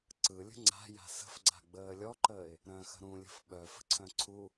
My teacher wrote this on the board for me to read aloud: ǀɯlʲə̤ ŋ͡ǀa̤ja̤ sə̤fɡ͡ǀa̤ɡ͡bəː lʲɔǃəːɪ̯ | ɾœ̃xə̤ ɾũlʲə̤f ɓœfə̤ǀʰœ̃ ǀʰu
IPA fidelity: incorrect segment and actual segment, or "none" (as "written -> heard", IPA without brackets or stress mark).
none